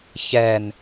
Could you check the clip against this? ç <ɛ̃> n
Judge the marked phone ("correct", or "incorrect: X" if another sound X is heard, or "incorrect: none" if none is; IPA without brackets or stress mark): incorrect: ɛ